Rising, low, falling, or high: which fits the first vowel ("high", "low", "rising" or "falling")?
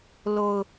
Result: low